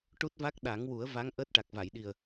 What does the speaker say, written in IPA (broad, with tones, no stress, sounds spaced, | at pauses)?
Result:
ʈ u˦˥ t̚ v a˦˥ k̚ ɗ a˨˩˦ ŋ w u˨˩˦ ə̯ v a˧˥ ŋ ʔ əː˦˥ t̚ ʈ a˨˩ k̚ v a˨˩˨ j ɗ i˨˩ ə̯